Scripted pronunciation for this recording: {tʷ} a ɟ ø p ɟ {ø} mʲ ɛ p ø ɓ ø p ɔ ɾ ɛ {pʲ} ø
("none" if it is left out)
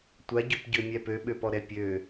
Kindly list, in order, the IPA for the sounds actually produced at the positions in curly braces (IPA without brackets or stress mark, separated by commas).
tʷ, ø, pʲ